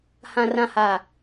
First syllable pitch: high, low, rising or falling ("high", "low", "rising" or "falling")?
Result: low